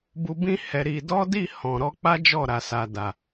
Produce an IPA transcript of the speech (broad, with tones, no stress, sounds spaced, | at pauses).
b u˧ b ĩ˦ h ɛ˧ ɾ i˧ d ɔ˦ d i˦˨ h ɔ̃˨ ɾ ɔ˧ k͡p a˦ d͡ʒ ɔ˦˨ ɾ a˨ s a˨ d a˨